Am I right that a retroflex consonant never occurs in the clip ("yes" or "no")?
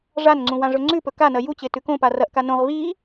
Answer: no